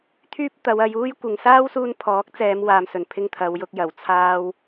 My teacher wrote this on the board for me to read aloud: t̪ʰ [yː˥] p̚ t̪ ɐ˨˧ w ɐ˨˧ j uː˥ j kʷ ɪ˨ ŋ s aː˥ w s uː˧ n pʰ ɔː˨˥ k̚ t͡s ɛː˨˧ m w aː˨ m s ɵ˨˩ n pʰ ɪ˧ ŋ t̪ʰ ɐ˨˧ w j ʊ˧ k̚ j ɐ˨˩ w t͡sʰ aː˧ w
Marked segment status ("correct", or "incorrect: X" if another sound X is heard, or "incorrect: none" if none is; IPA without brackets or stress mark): correct